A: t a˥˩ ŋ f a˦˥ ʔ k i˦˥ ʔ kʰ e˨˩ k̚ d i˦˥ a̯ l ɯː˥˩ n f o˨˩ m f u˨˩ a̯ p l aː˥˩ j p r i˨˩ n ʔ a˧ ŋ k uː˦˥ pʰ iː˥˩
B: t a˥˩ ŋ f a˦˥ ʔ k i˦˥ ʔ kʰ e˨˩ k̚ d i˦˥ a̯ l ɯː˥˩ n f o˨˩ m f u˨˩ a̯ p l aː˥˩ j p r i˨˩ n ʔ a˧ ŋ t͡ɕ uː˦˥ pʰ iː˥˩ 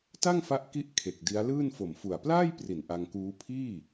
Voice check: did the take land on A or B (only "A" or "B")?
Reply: A